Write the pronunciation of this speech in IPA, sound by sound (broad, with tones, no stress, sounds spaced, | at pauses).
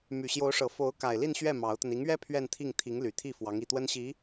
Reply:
m y˨˩ ɕ j o˧˥ ʊ̯ ʂ ɤ˨˩ f o˧˥ ʊ̯ k a˨˩ ɪ̯ l i˥˧ n ɕ ɥ ɛ˥˩ m ɑ˧˥ ʊ̯ t̪ ə˧ n i˧˥ ŋ ɥ ɛ˥ pʰ ɥ ɛ˥˧ n t̪ʰ i˥˩ ŋ t̪ʰ i˧˥ ŋ l y˨˩ t̪ʰ i˥˩ f w ɑ˧˥ ŋ i˨˩ t̪ w ə˥ n ɕ i˧˥